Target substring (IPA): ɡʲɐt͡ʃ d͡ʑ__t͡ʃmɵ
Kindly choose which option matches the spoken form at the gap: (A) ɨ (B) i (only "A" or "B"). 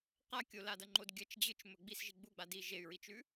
A